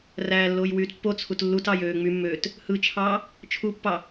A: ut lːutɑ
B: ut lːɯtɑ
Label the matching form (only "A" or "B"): A